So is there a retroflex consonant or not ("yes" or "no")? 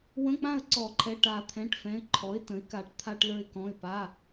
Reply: yes